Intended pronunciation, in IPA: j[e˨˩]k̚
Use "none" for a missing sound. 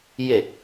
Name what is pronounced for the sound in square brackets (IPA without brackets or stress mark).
e˨˩